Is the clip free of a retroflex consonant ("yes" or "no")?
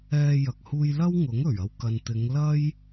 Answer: yes